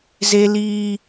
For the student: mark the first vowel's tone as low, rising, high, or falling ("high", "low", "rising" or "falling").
high